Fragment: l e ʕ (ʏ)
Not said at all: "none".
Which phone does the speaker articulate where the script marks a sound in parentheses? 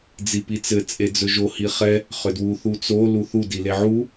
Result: u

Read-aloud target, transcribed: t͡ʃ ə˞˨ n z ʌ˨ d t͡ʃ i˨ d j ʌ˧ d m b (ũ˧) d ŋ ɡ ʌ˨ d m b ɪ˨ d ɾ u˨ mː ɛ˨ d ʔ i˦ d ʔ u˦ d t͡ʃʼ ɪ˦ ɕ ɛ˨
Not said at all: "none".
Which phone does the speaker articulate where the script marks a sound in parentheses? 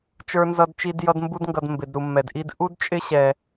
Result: u˧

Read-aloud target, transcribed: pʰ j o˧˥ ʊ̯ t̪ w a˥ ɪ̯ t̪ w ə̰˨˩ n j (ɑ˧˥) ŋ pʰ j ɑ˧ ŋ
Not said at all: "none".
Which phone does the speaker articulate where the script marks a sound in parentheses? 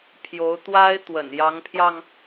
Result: ɑ˧˥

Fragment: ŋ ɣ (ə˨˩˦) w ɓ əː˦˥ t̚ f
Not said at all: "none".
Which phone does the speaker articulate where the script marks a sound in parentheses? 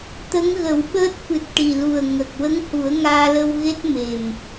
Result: ə˨˩˦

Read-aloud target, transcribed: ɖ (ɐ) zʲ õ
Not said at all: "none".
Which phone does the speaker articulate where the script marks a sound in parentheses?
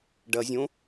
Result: ɐ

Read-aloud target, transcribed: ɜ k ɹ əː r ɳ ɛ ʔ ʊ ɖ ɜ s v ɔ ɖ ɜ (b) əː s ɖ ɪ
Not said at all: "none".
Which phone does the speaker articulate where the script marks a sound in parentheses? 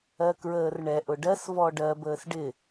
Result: b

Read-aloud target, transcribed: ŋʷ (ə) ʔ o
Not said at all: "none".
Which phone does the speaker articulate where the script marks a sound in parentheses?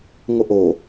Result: ə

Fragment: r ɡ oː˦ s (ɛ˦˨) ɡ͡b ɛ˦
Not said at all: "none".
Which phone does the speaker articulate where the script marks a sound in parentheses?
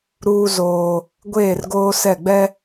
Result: ɛ˦˨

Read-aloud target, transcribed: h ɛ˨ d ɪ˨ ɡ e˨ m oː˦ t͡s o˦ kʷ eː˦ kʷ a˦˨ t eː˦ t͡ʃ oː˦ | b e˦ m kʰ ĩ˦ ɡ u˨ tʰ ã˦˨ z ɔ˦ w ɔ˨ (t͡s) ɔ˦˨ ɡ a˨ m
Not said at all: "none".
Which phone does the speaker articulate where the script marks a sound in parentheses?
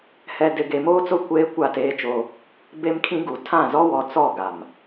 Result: t͡s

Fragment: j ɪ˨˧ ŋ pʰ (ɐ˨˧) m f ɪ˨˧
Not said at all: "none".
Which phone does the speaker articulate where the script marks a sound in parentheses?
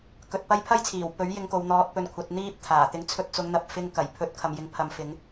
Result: ɐ˨˧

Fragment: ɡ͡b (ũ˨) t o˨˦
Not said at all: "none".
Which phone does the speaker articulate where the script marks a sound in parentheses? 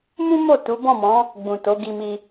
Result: ũ˨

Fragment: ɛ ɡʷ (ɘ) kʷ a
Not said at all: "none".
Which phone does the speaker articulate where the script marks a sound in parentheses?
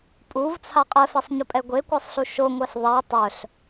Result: e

